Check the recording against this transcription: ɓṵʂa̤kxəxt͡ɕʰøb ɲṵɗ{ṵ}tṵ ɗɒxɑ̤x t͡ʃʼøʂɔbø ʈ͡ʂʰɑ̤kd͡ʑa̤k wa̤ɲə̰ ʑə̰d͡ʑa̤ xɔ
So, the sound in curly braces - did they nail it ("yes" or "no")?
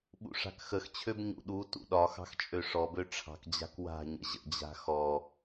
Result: no